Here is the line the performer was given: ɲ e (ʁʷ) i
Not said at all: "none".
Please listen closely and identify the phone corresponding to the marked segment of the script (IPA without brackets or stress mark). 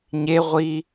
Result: ʁʷ